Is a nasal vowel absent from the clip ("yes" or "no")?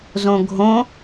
no